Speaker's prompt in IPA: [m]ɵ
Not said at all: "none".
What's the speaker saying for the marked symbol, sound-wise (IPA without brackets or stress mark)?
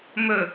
m